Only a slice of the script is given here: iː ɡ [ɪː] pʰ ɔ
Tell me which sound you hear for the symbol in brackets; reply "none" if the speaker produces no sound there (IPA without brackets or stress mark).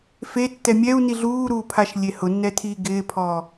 ɪː